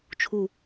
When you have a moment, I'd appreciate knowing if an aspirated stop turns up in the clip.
yes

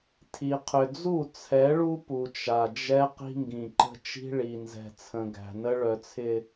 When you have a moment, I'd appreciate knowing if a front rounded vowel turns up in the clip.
yes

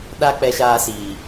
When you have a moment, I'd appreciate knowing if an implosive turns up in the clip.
yes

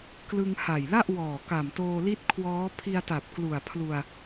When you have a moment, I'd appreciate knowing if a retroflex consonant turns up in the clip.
no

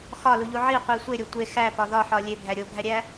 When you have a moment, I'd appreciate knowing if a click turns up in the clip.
no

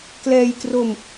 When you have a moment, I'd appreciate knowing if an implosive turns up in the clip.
no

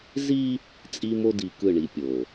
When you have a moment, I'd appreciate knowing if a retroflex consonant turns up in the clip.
yes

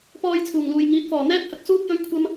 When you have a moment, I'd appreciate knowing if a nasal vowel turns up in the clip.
no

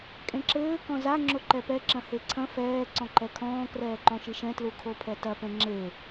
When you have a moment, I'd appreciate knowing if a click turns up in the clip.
yes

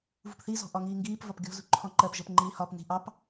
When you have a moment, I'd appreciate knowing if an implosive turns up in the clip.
no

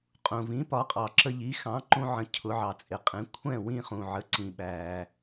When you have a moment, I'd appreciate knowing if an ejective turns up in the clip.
yes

